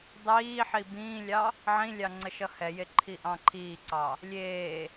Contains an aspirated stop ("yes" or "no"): yes